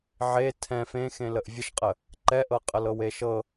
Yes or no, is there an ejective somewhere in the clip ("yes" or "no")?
yes